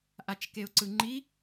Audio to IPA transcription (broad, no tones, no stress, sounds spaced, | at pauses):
ʔ a t͡ʃ k e ʊ̯ ǀ ɯ ŋ͡ǃ i